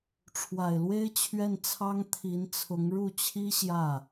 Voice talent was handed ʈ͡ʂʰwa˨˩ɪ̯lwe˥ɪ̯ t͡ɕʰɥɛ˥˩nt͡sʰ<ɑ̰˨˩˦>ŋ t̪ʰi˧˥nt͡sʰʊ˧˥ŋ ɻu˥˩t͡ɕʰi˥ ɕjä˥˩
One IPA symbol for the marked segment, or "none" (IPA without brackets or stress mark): ɑ˥